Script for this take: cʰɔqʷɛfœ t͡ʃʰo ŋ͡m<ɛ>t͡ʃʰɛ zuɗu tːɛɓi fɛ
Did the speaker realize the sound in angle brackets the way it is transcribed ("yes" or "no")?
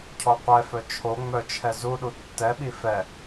no